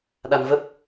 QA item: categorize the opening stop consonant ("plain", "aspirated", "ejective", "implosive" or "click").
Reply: implosive